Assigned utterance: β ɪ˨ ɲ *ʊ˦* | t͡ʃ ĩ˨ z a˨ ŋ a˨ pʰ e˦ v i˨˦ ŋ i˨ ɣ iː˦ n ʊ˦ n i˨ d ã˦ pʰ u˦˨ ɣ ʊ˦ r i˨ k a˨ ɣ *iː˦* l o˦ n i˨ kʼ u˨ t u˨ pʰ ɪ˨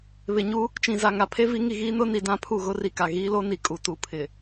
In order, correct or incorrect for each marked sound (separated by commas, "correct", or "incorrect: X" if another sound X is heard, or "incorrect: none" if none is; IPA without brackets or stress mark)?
incorrect: u˦, correct